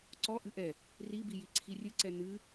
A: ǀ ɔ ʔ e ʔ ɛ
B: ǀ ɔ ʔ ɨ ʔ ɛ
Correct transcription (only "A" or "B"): B